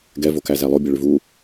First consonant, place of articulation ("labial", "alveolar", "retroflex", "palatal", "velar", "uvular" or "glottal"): velar